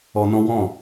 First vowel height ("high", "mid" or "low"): mid